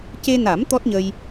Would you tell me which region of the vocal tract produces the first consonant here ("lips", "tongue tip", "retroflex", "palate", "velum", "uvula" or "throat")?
palate